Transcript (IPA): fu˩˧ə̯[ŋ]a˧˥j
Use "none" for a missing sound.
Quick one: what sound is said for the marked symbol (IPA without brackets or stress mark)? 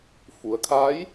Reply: kʰ